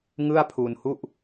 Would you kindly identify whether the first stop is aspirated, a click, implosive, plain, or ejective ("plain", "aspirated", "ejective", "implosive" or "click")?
aspirated